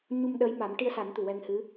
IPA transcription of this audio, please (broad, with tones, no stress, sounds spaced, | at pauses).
ɲ u˧ m ɗ əː˧˥ j m a˨˩˦ m ʈ i˧ ə̯ s a˨˩˦ n t̪ u˨˩ w ɛ˧ ŋ h ɨ˧˥